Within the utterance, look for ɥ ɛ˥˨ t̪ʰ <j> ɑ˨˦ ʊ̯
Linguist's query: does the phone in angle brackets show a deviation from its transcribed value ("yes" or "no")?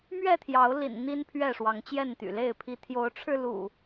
no